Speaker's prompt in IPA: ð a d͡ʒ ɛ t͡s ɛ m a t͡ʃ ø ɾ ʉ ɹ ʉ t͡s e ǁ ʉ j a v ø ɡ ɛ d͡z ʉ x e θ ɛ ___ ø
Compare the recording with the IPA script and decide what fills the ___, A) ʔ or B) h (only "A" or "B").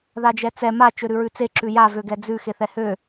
B